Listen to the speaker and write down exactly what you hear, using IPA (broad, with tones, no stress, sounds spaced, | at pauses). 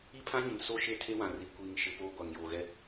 i˦ pʰ ã˦ ɲ ɪ˨ m s o˦ ʃ e˦ tʰ e˦ w ã˨ r i˨˦ kʷ iː˨ ŋ ʃ ɪ˨ p oː˦ ɡʷ a˨ ŋ j oː˨ ɣ ɛ˦